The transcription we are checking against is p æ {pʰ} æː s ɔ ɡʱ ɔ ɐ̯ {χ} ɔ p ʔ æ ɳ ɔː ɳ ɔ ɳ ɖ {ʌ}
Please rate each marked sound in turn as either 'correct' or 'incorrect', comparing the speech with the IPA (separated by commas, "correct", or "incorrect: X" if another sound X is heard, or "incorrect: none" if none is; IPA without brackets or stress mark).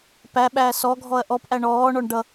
incorrect: ɓ, incorrect: ʔ, correct